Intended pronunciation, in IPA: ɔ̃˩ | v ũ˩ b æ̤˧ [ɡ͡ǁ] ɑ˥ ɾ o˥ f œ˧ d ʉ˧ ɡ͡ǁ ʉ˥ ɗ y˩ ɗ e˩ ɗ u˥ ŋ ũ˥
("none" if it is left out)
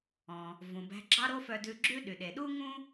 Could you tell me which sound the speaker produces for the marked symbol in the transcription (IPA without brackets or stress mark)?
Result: ɡ͡ǁ